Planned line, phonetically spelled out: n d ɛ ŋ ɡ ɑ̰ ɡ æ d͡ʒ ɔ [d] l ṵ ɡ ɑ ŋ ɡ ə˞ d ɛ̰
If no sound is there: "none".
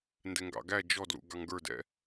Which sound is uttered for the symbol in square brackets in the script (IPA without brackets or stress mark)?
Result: d